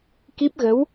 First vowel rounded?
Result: no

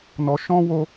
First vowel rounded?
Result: yes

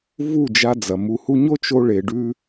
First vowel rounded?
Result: yes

